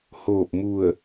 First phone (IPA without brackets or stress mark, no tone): h